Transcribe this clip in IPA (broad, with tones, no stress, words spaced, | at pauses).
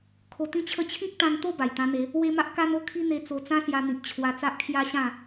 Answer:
kʰo˧t̪ĩ˥˧t͡ɕʰə˥˧ t͡ɕʰĩ˦k̚t̪ã˧ŋt̪o˥˧ ba˨˩jt̪ã˧n̪e˨˦ | we˦ma˦ʔ ka˦no˥˧kʰi˦ n̪e˧t͡so˧t͡sã˦sja˧ n̪ĩ˨p̚t͡ɕʰwa˧t͡sa˦ʔ kʰja˦ɕã˥˧